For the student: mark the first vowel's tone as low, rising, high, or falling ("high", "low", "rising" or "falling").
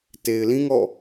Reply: low